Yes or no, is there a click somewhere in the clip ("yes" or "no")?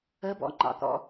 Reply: yes